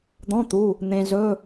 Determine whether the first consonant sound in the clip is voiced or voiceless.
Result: voiced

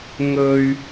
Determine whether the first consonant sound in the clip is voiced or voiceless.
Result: voiced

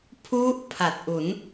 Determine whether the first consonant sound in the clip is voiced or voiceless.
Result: voiceless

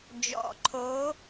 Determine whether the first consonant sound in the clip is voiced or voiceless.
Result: voiced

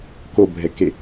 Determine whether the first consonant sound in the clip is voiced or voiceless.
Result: voiceless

